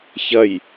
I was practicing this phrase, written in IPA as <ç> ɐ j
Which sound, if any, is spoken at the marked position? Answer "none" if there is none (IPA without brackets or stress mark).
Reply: ç